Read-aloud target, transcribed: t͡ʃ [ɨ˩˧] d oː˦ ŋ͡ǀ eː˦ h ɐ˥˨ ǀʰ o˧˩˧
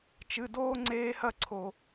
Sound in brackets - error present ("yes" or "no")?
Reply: yes